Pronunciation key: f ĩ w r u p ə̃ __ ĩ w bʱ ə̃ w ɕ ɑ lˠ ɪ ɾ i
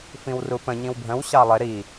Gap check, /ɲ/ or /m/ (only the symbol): ɲ